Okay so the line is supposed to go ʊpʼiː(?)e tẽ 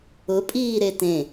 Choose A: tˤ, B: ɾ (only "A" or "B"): B